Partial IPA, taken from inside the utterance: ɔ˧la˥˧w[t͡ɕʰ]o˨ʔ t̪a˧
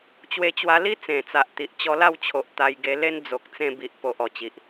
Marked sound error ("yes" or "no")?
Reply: no